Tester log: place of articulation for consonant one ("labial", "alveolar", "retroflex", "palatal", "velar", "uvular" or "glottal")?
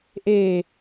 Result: glottal